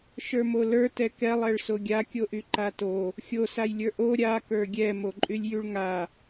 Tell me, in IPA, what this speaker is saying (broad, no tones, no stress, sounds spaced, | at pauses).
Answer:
ʃ ə˞ m o l ə˞ t ɛ k ɛ lˠ ɛ ɭ s o ɡʲ a kʲ o ʔ y ǃ a t o | xʲ o s a j lʲ ə˞ ʔ o ɾʲ a k ə˞ ɡʲ ɛ m o ǃʼ y lʲ j y ɭ ŋ a